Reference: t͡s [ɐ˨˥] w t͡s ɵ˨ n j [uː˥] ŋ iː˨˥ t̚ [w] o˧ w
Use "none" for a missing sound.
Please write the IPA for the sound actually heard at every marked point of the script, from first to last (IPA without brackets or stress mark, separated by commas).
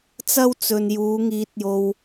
ɐ˥, uː˨˧, j